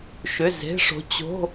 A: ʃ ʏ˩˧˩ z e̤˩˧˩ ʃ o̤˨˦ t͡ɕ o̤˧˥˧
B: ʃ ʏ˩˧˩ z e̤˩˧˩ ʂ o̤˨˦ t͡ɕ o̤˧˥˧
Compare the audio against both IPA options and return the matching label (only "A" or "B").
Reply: B